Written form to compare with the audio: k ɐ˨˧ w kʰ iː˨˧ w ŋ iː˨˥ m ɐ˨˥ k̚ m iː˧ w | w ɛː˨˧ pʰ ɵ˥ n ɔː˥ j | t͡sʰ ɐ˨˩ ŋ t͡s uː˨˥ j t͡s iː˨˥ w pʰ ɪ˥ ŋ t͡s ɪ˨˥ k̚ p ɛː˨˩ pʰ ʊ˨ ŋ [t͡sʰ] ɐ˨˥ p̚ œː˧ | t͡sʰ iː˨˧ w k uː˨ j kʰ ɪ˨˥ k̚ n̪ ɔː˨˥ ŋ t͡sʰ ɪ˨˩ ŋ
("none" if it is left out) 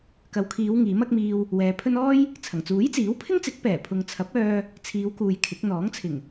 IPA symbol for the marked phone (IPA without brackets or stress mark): t͡sʰ